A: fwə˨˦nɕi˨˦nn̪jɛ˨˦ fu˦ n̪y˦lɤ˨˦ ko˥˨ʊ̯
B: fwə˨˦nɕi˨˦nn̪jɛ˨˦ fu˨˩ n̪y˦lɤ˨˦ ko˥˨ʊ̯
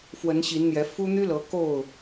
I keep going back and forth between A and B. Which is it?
A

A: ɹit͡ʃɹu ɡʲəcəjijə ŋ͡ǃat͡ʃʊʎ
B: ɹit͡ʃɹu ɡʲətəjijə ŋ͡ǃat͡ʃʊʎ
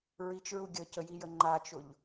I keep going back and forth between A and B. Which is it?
A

